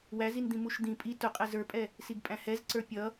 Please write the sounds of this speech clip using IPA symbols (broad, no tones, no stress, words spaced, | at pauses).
wæzind̪ĩ muʃd̪ĩ pʼi tʊqʼɛ zə˞pʼɛ | siɡpʼæ̃hɛzǀə˞ pʲʌ